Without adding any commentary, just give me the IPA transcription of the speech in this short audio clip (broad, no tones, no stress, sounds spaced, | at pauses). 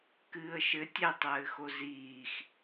k ɨː ə̯ ʃ ɘ tʲ ɛ tˤ ɘː x o z iː x